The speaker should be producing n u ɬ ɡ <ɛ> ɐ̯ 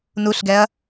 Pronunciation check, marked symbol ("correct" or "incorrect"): correct